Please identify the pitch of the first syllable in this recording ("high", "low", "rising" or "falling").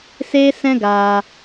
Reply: high